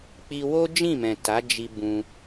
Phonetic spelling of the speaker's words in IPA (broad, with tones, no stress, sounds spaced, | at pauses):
k͡p i˧ w o˦ d͡ʒ ĩ˦˨ m ɛ̃˨ t a˨˦ d͡ʒ i˧ b ũ˧